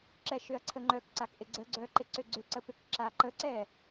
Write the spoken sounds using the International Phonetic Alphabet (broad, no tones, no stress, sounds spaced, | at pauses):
ǁ ɛ ʃ ʏ ɐ̯ ǀʰ ə ŋ͡ǃ œ k ǀ a k ʔ ɪ ɡ͡ǀ ə ɡ͡ǀ œ ǃ ɪ ǀ ʏ ɡ͡ǀ ʏ ǀ ə p ʏ k ǁ a ǃ ə ǀ ɛ